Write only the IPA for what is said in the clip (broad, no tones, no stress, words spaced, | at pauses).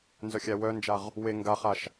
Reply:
nzœxʲæwœnd͡ʒaʁ | we ŋɡaχaʃ